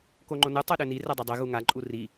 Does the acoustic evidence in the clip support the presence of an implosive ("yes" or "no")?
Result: yes